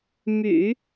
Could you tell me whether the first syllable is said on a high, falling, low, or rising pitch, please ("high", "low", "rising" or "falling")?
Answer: low